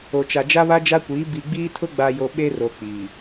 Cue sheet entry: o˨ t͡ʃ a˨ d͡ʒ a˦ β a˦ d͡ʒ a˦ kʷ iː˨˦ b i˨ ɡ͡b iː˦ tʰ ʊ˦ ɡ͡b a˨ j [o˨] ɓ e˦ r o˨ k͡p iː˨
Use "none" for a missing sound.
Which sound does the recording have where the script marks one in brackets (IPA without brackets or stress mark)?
o˨